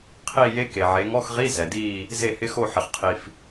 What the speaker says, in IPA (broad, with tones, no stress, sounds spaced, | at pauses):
qʰ iː˥˨ j e˦˥ k e˩ ʕ e˩˧ ŋ ɔ˧˥˧ x ʁ i˧˥˧ z ɛ˩ d iː˥˨ | z e˥˨ h ɪ˦˥ x o˥˨ ħ ɪ˩ χ qʰ i˩ f